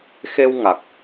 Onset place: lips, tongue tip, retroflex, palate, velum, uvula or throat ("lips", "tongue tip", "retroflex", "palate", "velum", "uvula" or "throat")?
velum